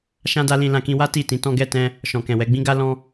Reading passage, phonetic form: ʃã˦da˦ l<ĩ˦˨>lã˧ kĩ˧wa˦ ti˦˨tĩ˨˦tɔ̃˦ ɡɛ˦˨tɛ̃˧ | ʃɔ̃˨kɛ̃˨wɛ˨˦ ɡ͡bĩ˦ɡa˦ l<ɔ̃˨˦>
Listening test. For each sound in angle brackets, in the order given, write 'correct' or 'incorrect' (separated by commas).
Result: incorrect, incorrect